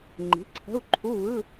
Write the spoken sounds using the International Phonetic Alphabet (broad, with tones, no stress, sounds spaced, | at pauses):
ŋ͡ǃ i̤˩˥ ǀʰ ə̤˧˥˧ u̯ ǃʰ u˧˥˧ β ɯ˧˥˧